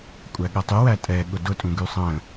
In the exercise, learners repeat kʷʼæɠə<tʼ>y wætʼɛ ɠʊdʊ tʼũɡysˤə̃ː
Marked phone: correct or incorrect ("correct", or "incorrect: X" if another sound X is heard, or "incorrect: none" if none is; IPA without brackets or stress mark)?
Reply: incorrect: tˤ